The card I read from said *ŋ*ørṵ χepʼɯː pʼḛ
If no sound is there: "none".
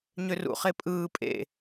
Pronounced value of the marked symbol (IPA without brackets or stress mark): ɲ